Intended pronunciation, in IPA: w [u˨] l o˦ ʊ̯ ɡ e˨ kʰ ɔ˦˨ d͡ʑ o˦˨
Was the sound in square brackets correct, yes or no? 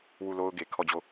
no